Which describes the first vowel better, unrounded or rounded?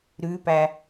rounded